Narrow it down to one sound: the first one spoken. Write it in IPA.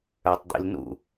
ə˞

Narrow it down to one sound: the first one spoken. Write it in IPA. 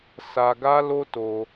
s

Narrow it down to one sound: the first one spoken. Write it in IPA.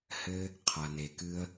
h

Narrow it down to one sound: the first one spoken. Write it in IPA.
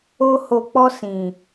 o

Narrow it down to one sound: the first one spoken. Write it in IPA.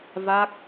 v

